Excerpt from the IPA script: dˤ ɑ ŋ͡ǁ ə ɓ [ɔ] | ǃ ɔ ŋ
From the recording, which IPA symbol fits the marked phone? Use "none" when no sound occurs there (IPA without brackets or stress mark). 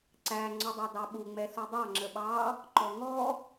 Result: ɑ